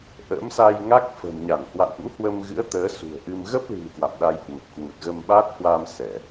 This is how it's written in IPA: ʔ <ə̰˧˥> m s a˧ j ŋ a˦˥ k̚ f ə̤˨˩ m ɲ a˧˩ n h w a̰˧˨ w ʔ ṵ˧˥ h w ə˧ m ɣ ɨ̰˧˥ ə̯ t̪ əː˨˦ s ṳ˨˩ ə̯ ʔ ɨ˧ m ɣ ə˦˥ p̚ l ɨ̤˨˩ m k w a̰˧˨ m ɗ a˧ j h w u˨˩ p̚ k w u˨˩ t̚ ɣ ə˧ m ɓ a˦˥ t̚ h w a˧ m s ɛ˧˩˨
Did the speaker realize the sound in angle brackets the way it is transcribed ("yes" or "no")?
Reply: yes